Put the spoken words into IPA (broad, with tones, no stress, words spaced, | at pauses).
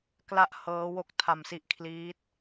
kla˥˩ʔhɤː˦˥wo˦˥k̚ tʰa˧msi˦˥ʔkʰliː˦˥t̚